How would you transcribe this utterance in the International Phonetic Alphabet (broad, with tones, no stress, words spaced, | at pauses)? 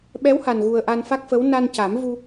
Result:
ɓɛ˧˥wha˨˩nɣu˨˩ə̯ ʔa˧nfa˦˥k̚fə˧˥w na˧nca˨˩˦m vu˧